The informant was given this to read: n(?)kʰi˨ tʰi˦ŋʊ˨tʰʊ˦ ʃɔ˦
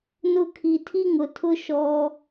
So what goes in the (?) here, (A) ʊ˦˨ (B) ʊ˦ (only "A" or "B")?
A